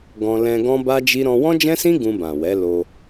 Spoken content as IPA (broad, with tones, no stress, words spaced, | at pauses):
ɡɔ̃˧ lɛ̃˧ ɡɔ̃˦ba˦d͡ʒi˦ ɾɔ̃˧wɔ̃˦d͡ʒɛ̃˦sĩ˦ ɡũ˧bã˨wɛ˨˦ lo˧